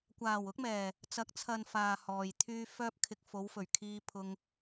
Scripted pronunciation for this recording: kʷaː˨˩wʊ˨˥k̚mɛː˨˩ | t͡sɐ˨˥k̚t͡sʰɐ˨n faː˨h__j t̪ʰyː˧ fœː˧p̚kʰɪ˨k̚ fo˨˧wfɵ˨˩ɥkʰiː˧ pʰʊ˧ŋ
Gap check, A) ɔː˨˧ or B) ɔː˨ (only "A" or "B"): B